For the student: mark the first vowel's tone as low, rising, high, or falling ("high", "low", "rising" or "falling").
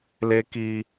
high